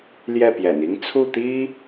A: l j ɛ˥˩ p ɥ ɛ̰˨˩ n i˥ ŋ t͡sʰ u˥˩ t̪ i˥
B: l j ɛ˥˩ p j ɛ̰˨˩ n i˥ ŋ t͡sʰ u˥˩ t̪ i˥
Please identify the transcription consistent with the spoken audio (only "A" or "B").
B